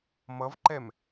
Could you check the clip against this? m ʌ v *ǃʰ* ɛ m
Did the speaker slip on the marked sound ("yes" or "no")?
yes